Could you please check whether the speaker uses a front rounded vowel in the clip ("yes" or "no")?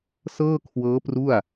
no